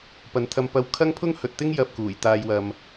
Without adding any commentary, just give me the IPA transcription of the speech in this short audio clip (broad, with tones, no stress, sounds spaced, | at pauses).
p ɐ˨ n t̪ʰ ɐ˧ m p ɐ˧ w kʰ ɐ˥ ŋ pʰ ʊ˥ ŋ h ɵ˨ t̚ t̪ ɪ˥ ŋ j ɐ˧ p̚ k uː˨˩ j t̪ aː˨˧ j w ɐ˨ m